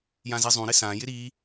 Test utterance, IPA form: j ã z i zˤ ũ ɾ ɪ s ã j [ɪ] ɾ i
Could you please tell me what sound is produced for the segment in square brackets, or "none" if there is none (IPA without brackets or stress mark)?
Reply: ɪ